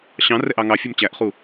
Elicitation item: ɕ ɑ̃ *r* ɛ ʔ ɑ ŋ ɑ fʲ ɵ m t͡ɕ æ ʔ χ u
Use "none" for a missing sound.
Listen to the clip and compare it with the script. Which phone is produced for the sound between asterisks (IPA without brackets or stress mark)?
r